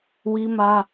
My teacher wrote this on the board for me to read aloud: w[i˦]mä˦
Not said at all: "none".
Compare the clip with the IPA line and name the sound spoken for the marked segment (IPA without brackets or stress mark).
i˦